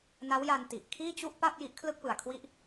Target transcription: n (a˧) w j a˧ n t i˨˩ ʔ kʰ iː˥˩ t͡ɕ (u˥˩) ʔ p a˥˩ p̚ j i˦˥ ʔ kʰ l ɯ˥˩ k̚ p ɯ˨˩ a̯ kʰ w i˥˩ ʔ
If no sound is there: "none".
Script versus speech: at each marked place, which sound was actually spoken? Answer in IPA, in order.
a˦˥, u˥˩

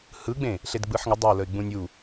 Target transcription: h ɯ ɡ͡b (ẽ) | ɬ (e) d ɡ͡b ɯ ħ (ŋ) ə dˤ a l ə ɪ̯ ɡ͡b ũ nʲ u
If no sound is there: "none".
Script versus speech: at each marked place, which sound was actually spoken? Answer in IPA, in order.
ẽ, e, ŋ

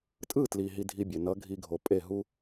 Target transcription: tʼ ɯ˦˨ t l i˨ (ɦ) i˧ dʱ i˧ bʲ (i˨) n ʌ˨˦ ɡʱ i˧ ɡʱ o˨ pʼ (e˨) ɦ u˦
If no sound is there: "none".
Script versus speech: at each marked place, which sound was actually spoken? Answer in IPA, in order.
ɦ, e˨, e˦˨

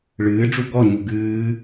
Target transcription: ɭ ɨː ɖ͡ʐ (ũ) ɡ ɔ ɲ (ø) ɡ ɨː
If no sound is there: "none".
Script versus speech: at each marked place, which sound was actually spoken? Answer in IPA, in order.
u, u

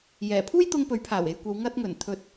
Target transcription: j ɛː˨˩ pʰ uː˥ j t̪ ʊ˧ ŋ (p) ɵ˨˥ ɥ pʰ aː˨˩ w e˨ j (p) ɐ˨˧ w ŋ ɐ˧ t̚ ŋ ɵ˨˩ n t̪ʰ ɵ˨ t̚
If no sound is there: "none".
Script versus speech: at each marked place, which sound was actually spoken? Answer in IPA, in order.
p, kʷ

